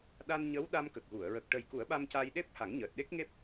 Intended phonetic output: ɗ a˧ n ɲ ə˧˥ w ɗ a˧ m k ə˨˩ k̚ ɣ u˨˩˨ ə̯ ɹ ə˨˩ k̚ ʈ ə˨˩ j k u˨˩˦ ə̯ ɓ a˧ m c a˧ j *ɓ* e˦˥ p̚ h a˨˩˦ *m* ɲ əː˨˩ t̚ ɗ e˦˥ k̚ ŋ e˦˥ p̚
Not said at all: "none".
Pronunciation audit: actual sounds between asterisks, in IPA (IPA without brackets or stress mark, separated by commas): ɗ, ŋ